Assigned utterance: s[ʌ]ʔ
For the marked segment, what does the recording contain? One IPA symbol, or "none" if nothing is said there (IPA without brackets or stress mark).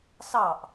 ɑ